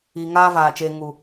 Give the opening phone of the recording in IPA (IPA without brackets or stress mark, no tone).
iː